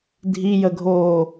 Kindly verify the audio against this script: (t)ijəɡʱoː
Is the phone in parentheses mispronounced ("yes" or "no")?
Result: yes